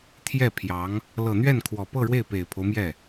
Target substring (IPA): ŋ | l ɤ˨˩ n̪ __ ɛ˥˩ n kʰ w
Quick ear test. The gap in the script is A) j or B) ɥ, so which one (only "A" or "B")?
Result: B